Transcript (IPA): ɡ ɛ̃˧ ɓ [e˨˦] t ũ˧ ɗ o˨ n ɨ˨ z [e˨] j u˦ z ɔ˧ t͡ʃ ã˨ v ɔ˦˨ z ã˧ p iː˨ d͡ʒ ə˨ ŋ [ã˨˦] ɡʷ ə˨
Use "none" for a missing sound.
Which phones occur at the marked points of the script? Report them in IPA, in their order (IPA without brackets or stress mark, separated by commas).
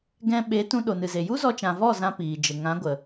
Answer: e˨˦, e˨, ã˨˦